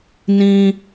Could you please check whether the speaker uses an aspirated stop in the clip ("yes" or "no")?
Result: no